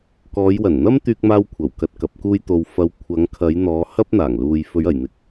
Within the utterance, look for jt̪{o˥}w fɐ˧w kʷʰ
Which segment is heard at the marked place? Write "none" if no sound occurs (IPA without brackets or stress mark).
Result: o˧